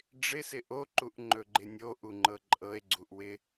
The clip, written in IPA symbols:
ɖ͡ʐ ɪ s ɪ ʔ o ǃ u ʔ ŋ͡ǃ ɵ ɡ͡ǃ ɪ nʲ o ʔ u ŋ͡ǃ ɤ ǃʼ ɤ e̯ ɡ͡ǀ u ʔ w ɪ

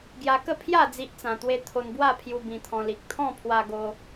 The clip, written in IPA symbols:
ɡ j a˧ k ə˥˧ pʰ j a˥˧ d͡z i˦ ʔ t͡s ã˧ t̪ w e˦ t̪ʰ o˧ n b w a˥˧ pʰ j u˧ b ĩ˧ t̪ʰ ɔ̃˧ l i˨ k̚ t̪ʰ ɔ̃˥˧ pʰ w a˧ ɡ o˧

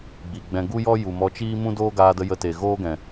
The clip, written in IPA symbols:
ɡ͡b i˨ ɡ͡b ɛ̃˧ ɡ u˦ j ɔ˦ j u˨ m ɔ˧ t͡ʃ iː˦ m ũ˦ d oː˦ ɡ aː˧ d ə˧ j ə˧ t e˨ ɣ oː˦ ɡ ɛ̃˨

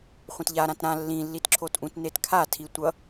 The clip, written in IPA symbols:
χʷ ɛ̃ t ʎ a ɾ ã t ɾ ã lː ĩ lː i t ǁʰ o t ʔ ũ t n e t kʰ a tʰ i tʷ ʌ

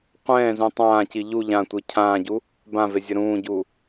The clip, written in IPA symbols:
qʷ ɛ̃ː z ũ tˤ ãː c i ʎ u ʎ ã tʷ i cʰ ãː ɟ u | b ã v e zʲ ʌ ɾ ũː ɟ u

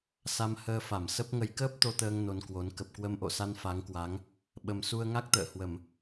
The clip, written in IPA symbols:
s a˧ m h əː˧ f a˧˩ m s ə˦˥ p̚ ŋ ə˨˦ j k əː˦˥ p̚ t̪ o˧ t̪ əː˧ ŋ n o˧ n k w o˨˦ n k ə˨˩ p̚ k w ə˧ m ʔ o̰˧˨ s a˧ n f a˨˦ ŋ k w a˨˦ ŋ | ɓ ə˨˩ m s u˧ ə̯ ŋ a˦˥ k̚ t̪ ə̰ː˧˨ h w ə˧˩˨ m

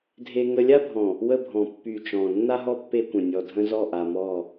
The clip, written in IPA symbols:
dʱ e˦ ŋ ə˦ lʲ a˦ bʱ ɔ̃˨ | w ə˦ bʱ ɔ̃˨ pː y˨ t͡ʃ ɔ̃˨ nː a˦ ɦ ɔ˦ pː e˦ kʷ ə̃˨ nʲ ɔ˨ dʱ ə̃˦ z ɔ˦˨ ʔ a˨ m ɔ˦˨

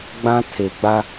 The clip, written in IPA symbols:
ɡ͡b ã˦ tʰ e˨ ɡ͡b a˦

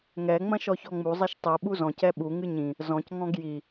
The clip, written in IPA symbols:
ŋ ɛ ŋ͡m ɐ̃ ʃ ɔ ç ɔ ŋ͡m u zˤ ɛ ʃ tˤ i ɓ u z ɔ̃ c ɛ ɓ u ŋ ɨ ɲ ĩ | z ɔ̃ c ŋ ɔ̃ ɡ j i

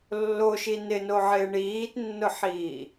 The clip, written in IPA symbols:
lː o ʃ i n ɪ n o ʕ ɪː ɳ iː t nː ʊ ħ iː

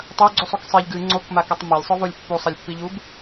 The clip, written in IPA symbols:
tˤ ɐ ɡ͡ǀ u sˤ u k sˤ i ʎ ɡ ɨ ŋ͡ǀ o k m a k ɐ tˤ m a lʲ sˤ ɵ v o lʲ pː u sˤ ɐ lʲ pː i ʎ u b

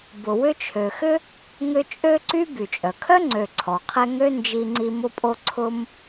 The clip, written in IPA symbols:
b ʊ˨ w ʏ˦ t͡ʃʰ ø˨ x ʏ˥ | ŋ ʏ˦ t͡ʃʼ ø˥ ǀ y˥ b y˩ t͡ʃʼ œ˩ kʰ œ˥ ŋ͡ǀ ø˨ ǀʰ ɔ˩ qʰ ɛ˦ ŋ ø˥ n d͡ʒ i˦ ŋ͡ǀ i˦ m ʊ˥ pʼ o˥ ǀʰ ʊ˥ m

